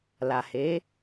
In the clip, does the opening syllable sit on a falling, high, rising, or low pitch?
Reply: low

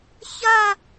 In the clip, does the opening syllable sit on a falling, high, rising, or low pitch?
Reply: falling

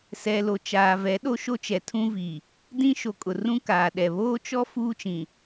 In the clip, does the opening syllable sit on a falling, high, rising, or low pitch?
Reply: low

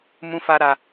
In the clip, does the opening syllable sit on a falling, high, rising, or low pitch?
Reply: high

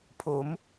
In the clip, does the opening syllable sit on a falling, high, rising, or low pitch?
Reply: rising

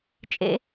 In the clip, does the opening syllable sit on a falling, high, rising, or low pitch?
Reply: high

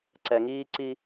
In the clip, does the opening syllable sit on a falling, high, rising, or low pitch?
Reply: low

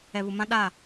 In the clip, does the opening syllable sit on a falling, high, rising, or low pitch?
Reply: low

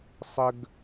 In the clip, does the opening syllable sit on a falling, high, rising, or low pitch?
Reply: high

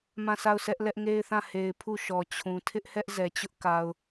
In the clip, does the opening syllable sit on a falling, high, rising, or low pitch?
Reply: falling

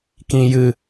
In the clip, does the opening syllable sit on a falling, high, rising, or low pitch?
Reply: low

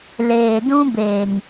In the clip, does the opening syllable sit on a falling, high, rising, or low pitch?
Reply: low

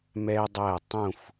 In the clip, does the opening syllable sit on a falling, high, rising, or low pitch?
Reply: high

